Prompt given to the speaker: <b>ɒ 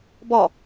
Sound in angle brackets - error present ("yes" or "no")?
no